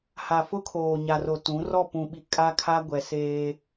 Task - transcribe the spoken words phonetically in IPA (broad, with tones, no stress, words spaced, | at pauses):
ha˨fʊ˦kʰoː˨ ɲa˨ro˨ tũ˨˦ rɔ˦˨pũ˨ɓi˨ kʼa˦kʰa˦ɡʷɛ˨ seː˦